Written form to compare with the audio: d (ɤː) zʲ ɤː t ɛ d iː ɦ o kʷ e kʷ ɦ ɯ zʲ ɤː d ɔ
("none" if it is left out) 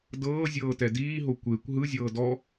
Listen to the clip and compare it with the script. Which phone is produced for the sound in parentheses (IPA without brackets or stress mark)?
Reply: ɤː